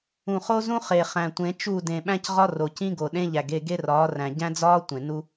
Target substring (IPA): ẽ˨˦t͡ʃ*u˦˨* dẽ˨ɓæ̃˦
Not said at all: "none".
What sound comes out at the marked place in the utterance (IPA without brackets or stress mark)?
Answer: u˦˨